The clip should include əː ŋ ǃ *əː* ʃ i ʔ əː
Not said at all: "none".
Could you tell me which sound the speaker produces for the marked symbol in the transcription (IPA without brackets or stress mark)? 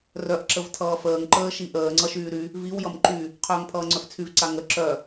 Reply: əː